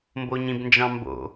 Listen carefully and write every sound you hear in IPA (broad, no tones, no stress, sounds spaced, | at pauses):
m b o ɲ ĩ b n d͡ʒ ɑ̃ m b o̰